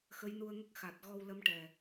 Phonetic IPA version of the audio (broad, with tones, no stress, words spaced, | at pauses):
xə˧˥jnu˧ə̯ŋə˦˥k̚ xa˨˩t̚ ɣɔ˧wlə˧˥mʈɛ˨˩